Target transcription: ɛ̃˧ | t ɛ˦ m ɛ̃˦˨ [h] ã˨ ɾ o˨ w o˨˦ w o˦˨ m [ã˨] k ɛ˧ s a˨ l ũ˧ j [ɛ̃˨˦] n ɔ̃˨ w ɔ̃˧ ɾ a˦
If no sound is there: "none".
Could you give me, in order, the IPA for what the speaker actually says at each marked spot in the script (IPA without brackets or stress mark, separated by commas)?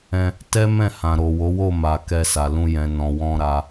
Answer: h, a˨, ɛ̃˨